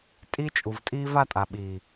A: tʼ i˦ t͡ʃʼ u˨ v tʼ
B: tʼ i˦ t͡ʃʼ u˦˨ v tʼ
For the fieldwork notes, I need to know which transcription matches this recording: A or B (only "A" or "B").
A